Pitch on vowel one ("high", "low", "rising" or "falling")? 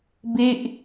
falling